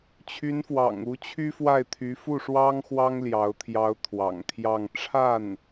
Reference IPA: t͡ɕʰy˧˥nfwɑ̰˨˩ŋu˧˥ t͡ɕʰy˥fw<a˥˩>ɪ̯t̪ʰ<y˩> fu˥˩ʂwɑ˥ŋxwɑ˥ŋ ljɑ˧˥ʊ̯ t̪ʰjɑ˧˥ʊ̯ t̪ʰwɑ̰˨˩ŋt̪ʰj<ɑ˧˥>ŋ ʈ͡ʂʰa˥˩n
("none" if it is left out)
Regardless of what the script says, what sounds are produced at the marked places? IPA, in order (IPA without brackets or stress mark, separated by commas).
a˥˩, y˧˥, ɑ˥˧